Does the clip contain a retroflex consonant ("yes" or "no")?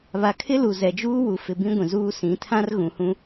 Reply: no